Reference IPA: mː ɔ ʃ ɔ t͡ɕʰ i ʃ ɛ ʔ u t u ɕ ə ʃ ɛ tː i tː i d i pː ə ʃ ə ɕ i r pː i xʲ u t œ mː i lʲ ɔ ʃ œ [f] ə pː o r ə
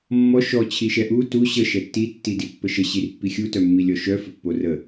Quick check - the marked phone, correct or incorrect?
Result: correct